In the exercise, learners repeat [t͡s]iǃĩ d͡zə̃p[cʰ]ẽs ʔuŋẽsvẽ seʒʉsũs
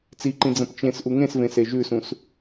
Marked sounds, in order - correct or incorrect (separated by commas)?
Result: correct, incorrect